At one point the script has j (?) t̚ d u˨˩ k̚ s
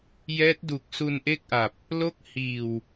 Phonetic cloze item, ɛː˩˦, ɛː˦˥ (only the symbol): ɛː˦˥